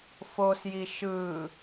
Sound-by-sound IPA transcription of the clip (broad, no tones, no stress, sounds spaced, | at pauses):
f o s j i ʃ ɯ